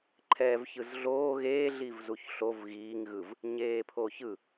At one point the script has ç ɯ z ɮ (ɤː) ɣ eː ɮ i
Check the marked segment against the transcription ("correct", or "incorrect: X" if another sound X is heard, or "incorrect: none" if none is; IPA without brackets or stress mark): incorrect: oː